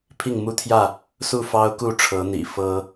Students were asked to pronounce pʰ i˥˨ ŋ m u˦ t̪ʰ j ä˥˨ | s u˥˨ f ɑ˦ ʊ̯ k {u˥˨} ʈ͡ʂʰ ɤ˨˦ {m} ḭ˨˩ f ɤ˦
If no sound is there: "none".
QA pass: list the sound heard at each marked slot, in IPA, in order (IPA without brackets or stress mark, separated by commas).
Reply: u˥˨, n̪